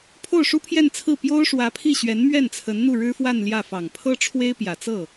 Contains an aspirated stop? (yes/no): yes